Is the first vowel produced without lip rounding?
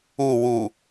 no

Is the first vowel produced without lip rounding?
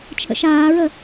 yes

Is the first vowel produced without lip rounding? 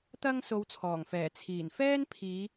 yes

